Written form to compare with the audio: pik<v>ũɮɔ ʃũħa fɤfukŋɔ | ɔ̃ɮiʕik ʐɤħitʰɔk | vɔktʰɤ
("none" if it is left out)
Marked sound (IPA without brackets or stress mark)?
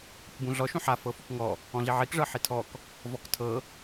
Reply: b